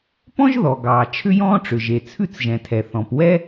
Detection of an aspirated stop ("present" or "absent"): present